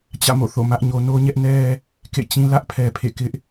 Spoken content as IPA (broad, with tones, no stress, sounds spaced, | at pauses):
t͡ɕ ä̰˦˨ m o̰˦˨ θ o̰˦˨ m ä˦ ʔ ɲ o˦ n o˦ ɲ ɛ˦ ʔ n ɛ˦ | k ḛ˦˨ t͡ɕ ĩ˦ l ä˦ ʔ pʰ ɛ˦ pʰ ḛ˦˨ k ɪ˦ ʔ